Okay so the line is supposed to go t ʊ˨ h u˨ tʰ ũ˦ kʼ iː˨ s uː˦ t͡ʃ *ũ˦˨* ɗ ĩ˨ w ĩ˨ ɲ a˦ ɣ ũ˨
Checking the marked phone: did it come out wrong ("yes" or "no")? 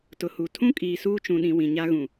yes